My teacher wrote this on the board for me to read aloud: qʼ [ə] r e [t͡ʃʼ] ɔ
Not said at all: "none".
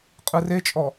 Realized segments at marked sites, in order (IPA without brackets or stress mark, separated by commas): ɯ, t͡ʃʼ